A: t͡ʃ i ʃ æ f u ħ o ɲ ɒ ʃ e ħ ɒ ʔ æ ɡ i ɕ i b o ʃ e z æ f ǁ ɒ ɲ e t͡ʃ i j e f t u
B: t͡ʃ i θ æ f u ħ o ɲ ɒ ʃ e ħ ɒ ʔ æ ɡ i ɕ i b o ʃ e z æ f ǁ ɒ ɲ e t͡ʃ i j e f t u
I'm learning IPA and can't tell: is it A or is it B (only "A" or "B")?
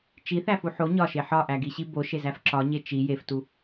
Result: B